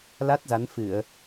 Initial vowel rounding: unrounded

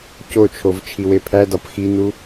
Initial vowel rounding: rounded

